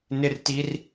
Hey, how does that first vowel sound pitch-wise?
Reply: low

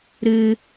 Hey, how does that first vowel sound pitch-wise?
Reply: high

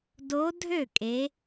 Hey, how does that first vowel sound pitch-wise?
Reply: rising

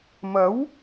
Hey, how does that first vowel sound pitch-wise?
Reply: rising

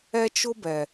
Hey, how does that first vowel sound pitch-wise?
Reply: high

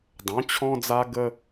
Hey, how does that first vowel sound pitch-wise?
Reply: rising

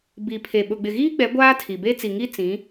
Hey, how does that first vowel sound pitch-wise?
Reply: low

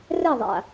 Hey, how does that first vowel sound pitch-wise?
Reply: falling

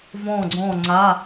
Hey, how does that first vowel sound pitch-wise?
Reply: falling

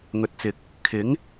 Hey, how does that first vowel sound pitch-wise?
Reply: low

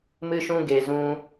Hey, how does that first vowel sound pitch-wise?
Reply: high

